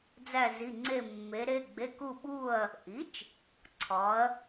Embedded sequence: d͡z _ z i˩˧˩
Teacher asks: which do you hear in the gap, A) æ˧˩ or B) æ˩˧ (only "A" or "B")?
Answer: A